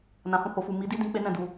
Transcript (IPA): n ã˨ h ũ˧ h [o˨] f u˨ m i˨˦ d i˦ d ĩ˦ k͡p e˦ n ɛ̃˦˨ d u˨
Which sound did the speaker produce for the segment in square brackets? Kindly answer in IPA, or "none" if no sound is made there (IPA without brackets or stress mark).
o˨